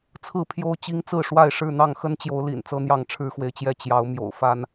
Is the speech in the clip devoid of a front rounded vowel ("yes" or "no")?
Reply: yes